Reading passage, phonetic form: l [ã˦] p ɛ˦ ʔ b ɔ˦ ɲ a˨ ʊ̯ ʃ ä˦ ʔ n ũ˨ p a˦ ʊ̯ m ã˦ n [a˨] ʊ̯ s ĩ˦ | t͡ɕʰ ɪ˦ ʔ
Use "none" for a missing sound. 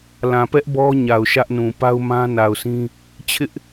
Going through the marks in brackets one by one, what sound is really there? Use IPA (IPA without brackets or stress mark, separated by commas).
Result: ã˨, a˨